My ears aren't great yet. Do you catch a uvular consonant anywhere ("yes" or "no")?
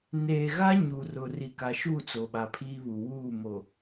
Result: no